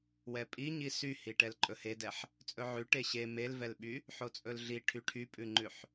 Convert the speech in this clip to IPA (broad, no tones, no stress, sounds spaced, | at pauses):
w ɛ pʼ i ɲ i s y h i ʈ ɛ l ǃʼ ɵ h e d ɛ ħ | t͡sʼ ɵ ʕ ʉ ʈ e ɕ e m e l v ɛ l ɓ y | ħ o t͡sʼ ɵ l ɮ i ʈʰ y ʈʰ y pʼ ʉ ŋ͡ǃ ʉ ħ